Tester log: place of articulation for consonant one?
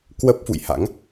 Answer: velar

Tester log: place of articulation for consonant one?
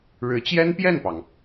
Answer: retroflex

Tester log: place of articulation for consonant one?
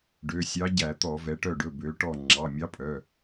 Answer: retroflex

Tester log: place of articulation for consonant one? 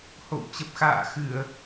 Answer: glottal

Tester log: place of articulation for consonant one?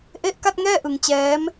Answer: glottal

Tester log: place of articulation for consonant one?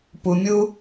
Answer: labial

